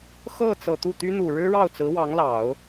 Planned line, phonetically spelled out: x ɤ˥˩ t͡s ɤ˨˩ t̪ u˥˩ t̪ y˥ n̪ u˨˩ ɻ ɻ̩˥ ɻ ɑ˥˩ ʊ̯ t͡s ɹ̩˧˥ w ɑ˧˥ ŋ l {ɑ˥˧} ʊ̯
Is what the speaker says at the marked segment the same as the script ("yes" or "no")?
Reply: no